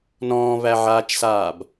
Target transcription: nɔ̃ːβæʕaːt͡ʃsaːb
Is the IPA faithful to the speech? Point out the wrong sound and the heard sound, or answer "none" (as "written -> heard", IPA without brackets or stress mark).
none